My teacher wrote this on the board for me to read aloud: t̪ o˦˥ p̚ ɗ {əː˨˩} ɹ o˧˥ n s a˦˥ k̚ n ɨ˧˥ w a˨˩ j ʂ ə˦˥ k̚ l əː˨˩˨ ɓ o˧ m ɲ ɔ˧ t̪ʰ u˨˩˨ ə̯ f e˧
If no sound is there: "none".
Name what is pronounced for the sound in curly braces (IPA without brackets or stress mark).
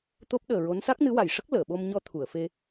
əː˨˩